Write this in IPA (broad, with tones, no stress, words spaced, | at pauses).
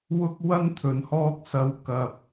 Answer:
wʊ˧k̚wɐ˧n t̪ʰɵ˨n hɔː˧k̚sɐ˨wkɐ˨p̚